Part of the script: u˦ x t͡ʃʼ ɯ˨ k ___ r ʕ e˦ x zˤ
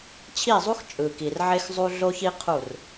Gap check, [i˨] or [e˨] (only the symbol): i˨